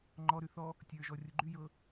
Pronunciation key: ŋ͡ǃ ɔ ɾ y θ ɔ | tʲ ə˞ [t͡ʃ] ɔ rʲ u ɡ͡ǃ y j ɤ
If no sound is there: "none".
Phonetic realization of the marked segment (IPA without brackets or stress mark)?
ʒ